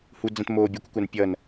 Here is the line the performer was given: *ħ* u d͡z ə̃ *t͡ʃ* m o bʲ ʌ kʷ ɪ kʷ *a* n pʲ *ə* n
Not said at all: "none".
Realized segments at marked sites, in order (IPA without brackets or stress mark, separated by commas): h, t, a, ʌ